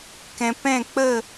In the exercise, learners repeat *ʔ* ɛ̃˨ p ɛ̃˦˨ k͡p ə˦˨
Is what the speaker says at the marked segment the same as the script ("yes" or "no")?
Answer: no